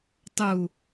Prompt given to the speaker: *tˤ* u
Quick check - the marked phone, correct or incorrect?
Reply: correct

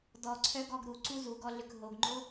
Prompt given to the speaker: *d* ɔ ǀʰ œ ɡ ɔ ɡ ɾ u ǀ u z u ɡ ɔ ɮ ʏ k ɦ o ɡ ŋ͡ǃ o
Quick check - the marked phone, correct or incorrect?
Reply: correct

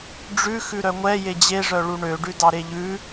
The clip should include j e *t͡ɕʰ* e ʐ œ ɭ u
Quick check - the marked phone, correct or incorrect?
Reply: incorrect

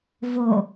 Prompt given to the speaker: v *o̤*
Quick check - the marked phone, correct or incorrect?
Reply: incorrect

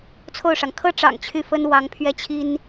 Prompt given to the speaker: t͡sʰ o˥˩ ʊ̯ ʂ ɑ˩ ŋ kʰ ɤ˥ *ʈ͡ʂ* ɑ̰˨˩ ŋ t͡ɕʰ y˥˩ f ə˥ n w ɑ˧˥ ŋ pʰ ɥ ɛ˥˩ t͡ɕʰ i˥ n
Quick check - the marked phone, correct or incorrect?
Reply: correct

